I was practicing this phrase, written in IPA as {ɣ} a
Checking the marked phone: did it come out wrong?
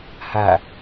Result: yes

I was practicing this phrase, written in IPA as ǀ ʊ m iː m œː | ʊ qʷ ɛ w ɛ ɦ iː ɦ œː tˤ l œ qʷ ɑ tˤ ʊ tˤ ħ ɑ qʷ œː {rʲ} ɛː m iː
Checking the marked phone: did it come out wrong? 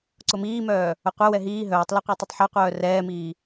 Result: yes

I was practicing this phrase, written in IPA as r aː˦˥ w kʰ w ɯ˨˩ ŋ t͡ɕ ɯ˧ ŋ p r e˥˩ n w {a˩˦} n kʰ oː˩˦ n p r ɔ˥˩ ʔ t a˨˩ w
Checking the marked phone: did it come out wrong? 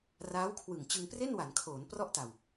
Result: no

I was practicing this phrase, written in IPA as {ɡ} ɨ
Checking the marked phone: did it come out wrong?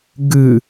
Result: no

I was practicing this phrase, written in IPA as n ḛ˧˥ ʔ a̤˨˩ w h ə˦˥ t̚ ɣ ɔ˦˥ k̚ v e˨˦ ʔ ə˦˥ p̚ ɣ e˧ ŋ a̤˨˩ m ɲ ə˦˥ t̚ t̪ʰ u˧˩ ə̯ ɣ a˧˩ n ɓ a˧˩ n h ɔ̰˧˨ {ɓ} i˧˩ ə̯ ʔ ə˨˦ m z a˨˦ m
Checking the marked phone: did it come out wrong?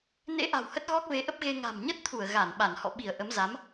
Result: no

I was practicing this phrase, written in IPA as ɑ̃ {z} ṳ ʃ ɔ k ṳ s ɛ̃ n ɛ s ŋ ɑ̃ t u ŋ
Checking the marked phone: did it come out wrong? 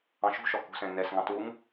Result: yes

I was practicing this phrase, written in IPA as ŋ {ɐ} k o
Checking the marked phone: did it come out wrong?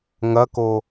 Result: no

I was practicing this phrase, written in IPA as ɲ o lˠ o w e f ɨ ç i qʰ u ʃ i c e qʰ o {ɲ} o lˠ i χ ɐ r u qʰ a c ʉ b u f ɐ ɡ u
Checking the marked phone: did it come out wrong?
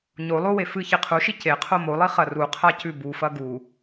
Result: yes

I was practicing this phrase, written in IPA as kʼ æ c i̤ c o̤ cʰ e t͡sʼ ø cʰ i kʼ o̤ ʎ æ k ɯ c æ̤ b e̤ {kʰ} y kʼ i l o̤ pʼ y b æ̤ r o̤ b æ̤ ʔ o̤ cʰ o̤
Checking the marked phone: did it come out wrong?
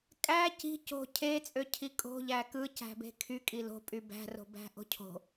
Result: no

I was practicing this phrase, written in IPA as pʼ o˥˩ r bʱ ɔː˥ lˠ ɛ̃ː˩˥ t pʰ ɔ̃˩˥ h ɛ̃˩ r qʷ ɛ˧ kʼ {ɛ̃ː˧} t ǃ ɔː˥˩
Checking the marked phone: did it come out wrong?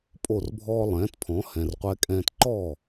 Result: no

